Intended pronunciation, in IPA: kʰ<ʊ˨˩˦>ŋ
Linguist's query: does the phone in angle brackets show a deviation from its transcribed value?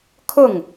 yes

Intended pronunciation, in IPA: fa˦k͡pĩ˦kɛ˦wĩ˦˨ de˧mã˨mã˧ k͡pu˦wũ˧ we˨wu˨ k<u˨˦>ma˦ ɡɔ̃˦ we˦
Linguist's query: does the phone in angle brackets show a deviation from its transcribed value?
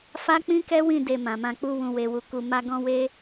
yes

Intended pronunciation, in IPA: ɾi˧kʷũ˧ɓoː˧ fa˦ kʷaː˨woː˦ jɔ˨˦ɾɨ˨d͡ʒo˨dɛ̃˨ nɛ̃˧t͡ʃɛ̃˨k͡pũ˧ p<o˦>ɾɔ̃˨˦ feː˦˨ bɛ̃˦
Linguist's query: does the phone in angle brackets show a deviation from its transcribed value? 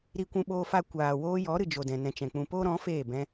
no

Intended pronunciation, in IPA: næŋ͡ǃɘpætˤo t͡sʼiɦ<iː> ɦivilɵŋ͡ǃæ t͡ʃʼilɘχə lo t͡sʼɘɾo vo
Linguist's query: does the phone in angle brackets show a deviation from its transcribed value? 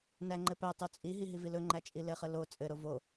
yes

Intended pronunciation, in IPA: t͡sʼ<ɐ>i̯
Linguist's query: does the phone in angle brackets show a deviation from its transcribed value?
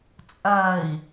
no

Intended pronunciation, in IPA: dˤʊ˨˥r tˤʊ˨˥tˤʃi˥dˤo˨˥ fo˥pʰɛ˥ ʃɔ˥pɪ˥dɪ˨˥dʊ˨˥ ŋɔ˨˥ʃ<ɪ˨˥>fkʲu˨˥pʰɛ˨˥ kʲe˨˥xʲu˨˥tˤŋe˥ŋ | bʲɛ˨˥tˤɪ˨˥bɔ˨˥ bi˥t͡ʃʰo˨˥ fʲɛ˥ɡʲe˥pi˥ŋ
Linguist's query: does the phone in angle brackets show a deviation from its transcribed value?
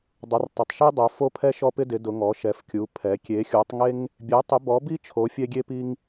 yes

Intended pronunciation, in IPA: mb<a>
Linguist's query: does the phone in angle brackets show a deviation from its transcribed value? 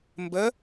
yes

